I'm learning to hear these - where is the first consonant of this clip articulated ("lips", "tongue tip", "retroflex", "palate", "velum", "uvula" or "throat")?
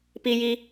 lips